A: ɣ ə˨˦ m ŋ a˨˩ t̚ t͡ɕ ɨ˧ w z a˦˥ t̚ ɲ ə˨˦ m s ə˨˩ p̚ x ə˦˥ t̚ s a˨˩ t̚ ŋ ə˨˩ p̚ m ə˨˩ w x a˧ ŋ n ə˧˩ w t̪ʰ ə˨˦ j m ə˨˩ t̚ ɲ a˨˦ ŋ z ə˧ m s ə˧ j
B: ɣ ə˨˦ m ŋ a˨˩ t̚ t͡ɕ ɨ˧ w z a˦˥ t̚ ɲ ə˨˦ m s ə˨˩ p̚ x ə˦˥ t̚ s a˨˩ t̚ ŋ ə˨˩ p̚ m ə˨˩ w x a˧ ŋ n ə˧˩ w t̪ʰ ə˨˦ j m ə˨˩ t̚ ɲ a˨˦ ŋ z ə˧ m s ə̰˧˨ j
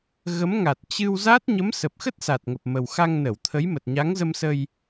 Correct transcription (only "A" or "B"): A